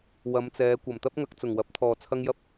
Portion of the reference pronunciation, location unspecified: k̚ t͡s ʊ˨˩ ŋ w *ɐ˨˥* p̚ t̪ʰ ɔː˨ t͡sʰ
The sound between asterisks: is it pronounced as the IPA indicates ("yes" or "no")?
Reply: yes